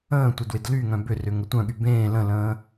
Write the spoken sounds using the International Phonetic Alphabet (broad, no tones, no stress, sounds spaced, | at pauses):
ə̃ː tʷ ɪ d w ɪ d l y ŋ œ̃ b ʏ r ʏ ŋ ə tʷ œ̃ ɠ y b ẽː l ə̃ l ə̃ː